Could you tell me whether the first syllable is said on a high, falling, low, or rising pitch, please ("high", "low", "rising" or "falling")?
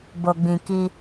low